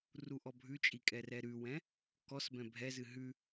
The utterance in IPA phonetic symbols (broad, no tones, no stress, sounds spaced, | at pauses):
r u ʔ ɔ bʱ ʉ t͡ʃʼ i kʼ ɛ r ɛ ɾ ʉ w ɛ̃ | k ɔ s b ɛ̃ bʱ ɛ z ɨ ɦ ʉ